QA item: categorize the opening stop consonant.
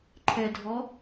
click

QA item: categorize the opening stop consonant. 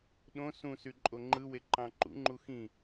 implosive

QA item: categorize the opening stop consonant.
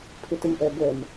aspirated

